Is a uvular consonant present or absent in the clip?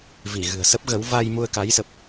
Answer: absent